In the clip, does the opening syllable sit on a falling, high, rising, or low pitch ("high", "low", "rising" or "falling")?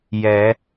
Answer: rising